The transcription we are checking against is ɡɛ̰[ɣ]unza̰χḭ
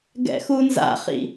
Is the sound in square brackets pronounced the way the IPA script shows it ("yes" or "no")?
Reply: no